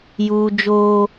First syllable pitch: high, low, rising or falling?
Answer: high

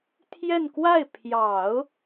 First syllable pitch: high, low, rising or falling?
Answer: falling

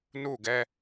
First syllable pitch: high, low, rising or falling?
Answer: falling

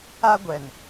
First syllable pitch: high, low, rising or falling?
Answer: high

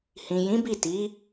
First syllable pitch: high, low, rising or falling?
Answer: low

